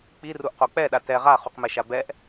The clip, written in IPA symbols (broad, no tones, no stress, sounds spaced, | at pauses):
k͡p i r u ʔ q o k͡p ɛ ɗ a t ɛ ʁ a χ u q m ɛ ʃ a b ɛ ʔ